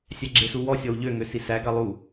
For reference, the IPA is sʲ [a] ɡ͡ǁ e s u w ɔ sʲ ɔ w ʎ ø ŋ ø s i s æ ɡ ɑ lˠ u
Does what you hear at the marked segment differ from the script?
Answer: yes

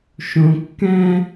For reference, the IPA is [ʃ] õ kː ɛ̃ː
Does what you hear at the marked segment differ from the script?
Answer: no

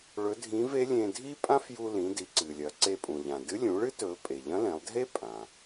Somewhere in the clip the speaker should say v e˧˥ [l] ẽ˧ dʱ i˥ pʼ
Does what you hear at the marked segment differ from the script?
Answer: yes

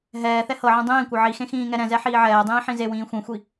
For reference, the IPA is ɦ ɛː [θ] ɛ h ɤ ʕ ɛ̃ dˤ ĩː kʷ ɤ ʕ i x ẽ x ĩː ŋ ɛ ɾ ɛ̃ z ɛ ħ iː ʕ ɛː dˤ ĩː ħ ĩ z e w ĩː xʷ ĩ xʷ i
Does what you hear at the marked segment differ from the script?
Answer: no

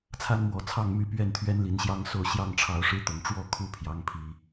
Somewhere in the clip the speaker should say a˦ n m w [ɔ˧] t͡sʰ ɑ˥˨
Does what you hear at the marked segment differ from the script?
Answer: yes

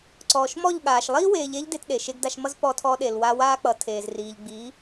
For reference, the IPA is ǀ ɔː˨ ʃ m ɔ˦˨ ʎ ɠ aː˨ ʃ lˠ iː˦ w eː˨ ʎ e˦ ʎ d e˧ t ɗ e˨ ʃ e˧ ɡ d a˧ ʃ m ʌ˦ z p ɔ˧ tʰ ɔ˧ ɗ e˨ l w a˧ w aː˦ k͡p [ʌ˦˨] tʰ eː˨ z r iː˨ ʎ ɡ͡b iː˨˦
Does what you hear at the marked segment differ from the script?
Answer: yes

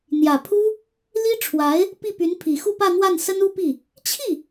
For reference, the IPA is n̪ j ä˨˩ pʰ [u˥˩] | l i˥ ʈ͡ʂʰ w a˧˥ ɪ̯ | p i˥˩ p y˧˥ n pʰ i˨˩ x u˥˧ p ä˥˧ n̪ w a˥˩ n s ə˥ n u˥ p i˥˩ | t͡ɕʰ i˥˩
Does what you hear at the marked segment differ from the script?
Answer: yes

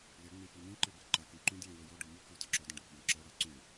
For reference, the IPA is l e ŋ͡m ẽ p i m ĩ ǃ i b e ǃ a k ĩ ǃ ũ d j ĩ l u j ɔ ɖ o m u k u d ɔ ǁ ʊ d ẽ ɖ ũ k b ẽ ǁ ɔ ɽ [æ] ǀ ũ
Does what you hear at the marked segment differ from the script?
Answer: yes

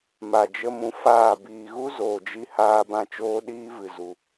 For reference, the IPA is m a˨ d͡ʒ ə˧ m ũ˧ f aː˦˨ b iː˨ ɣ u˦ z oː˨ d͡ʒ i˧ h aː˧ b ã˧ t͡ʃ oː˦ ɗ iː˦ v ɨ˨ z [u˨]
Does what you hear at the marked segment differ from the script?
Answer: no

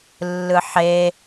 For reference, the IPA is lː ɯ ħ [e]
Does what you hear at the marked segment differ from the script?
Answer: no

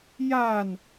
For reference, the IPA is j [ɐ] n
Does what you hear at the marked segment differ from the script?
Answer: yes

